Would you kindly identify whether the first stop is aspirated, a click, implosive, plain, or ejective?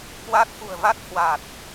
plain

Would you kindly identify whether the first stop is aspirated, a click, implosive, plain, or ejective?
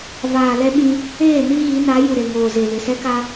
implosive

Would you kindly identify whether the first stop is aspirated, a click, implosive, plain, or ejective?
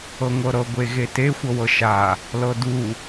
plain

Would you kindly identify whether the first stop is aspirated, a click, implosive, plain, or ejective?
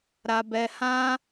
plain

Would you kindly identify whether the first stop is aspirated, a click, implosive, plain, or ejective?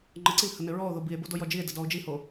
click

